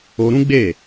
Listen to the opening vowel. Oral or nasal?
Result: oral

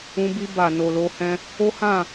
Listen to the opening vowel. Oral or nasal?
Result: nasal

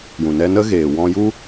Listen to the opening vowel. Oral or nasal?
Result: nasal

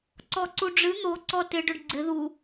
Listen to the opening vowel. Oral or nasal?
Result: oral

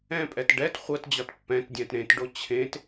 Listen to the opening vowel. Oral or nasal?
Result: nasal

